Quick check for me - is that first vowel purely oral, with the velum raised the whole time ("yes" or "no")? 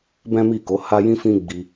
no